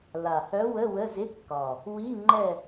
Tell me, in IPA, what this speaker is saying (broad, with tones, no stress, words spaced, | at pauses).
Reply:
la˨˩hœ˧˥wə˧˥˧ wə˧˥˧zɪ˧˥˧kːɒ˨˩ | wi˧˥˧ŋ͡ǃɛ˦˨